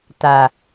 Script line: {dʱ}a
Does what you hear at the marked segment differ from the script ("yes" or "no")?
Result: yes